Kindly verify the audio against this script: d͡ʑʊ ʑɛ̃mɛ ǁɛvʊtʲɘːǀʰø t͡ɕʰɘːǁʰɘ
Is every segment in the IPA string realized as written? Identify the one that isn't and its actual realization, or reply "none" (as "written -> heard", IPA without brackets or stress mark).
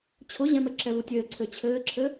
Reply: d͡ʑ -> t͡ɕʰ